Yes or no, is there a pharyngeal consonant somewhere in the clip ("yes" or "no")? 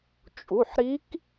yes